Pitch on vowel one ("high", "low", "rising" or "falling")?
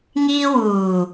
high